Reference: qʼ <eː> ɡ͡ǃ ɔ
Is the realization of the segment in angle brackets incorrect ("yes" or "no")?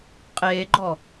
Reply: no